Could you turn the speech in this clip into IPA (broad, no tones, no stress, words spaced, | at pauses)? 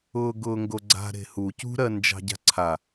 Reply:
ʊːɡʊːŋɡoɡ͡ǀa̤ ɾe̤hu cṳɾɜ nd͡ʒɑ̤ɟa̤ǀʰa